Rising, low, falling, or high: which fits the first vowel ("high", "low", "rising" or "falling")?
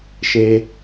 high